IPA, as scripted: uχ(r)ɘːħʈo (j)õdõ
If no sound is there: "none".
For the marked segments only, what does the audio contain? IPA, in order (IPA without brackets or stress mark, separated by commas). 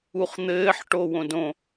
n̪, w